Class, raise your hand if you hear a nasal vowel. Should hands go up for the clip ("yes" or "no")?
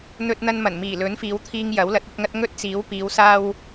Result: no